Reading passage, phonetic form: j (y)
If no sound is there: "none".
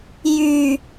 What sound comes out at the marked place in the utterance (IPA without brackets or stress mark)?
y